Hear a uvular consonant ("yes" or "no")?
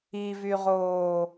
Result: yes